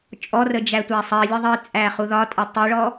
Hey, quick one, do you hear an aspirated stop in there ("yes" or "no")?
no